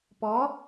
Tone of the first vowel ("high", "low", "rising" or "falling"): rising